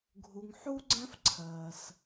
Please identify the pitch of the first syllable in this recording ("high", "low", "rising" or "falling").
low